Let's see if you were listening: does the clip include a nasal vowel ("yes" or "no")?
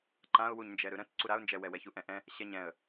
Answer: yes